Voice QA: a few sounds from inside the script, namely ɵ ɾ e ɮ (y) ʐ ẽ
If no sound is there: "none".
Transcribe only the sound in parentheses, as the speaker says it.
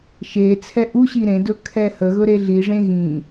i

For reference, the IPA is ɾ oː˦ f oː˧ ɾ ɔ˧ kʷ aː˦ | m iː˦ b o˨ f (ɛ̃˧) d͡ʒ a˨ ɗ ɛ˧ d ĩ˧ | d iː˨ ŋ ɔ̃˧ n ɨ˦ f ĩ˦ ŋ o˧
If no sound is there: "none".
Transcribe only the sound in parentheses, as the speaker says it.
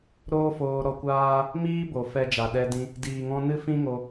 ɛ˧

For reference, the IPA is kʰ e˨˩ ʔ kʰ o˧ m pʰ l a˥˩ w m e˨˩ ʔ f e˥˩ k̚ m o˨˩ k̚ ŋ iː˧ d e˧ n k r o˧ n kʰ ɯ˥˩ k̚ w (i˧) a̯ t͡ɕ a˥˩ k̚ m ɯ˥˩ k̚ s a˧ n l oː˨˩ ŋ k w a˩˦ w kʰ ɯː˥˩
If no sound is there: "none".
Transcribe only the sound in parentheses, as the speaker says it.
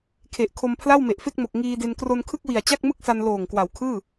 i˨˩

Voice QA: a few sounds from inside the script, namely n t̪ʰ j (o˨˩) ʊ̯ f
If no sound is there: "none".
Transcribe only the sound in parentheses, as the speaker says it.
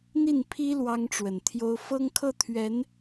o˥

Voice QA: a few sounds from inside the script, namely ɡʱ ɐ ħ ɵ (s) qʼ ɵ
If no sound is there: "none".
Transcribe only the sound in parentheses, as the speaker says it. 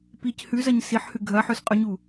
s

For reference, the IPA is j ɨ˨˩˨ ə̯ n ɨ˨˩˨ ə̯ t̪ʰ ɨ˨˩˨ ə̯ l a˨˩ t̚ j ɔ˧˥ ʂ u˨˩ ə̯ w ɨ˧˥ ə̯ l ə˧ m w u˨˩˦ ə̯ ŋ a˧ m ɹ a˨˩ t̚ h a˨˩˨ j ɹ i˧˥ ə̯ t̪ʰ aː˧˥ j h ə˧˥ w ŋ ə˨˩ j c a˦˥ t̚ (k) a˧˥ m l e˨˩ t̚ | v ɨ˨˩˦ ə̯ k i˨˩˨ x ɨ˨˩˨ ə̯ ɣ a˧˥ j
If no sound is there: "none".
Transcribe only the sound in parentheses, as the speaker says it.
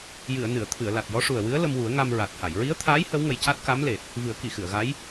k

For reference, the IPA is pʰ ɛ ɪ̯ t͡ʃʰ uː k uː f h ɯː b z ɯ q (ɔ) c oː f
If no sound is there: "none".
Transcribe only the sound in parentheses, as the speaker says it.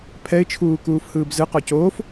ɔ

